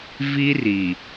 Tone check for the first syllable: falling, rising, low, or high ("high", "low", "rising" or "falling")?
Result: high